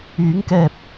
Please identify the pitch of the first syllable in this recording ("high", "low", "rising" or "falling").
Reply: rising